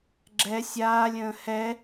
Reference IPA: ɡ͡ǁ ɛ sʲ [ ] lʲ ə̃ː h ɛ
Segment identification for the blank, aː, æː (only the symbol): aː